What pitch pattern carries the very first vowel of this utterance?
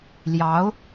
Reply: rising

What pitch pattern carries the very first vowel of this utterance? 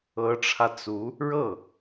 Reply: rising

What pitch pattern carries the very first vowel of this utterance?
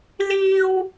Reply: high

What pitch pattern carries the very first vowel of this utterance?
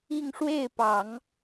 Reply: falling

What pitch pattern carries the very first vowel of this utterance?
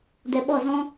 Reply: low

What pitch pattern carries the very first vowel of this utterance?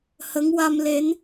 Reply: rising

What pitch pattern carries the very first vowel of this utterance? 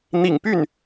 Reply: low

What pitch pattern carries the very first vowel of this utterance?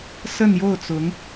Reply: falling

